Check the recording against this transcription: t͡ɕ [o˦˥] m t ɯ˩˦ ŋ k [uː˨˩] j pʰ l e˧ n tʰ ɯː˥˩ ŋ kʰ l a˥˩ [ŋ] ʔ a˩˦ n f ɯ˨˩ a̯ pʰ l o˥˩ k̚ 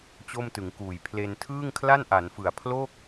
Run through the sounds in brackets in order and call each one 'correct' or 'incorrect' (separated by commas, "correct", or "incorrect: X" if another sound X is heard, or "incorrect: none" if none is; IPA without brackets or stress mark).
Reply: incorrect: o˥˩, correct, incorrect: n